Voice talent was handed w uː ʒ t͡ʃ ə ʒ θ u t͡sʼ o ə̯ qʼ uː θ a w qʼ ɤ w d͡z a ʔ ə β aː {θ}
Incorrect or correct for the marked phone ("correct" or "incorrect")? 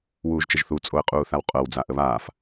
incorrect